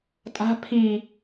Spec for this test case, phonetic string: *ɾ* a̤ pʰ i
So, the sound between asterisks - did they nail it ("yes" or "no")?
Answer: no